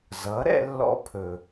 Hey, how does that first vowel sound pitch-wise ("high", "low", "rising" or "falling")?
rising